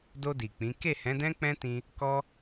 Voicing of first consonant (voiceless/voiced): voiced